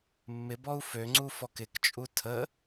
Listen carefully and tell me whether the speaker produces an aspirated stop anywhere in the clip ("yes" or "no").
yes